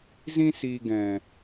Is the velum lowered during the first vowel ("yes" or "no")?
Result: yes